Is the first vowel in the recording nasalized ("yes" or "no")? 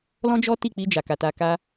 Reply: yes